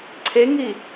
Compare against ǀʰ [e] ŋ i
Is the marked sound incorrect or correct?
correct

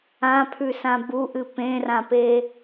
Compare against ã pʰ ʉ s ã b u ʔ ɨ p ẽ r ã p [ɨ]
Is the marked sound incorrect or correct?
incorrect: e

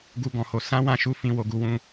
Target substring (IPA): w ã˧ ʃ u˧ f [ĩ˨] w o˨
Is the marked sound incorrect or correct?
correct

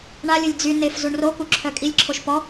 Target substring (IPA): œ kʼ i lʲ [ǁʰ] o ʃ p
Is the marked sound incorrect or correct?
correct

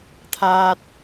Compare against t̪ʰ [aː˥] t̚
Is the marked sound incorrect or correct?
correct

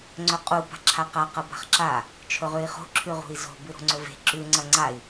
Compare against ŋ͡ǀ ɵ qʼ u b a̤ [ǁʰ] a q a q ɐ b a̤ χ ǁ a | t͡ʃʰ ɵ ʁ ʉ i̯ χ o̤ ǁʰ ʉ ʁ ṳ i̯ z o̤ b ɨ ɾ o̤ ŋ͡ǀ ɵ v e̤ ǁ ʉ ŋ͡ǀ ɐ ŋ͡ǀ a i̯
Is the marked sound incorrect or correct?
correct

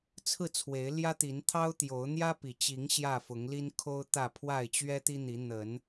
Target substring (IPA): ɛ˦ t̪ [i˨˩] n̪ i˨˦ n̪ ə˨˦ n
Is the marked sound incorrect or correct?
incorrect: i˦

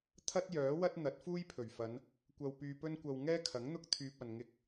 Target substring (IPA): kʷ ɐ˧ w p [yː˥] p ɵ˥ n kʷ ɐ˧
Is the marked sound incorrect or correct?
incorrect: yː˧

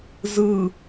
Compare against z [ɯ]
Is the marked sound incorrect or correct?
correct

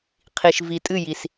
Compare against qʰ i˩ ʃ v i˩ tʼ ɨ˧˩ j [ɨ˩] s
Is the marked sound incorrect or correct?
incorrect: i˩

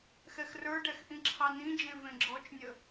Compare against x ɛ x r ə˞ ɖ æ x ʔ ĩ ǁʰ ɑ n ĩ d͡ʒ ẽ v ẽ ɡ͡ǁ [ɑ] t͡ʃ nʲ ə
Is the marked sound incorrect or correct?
incorrect: ɔ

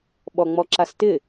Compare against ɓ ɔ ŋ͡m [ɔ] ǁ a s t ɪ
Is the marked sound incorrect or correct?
correct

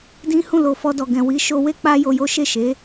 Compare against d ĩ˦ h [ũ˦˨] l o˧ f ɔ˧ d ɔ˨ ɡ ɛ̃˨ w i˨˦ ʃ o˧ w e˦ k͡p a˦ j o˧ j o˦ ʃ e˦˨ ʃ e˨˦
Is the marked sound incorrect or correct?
correct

